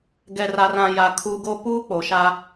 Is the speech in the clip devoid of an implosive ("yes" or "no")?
yes